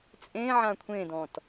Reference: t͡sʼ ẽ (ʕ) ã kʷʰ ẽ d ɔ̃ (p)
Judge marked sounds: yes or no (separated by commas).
yes, no